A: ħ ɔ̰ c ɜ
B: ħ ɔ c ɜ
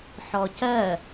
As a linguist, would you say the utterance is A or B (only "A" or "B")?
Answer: B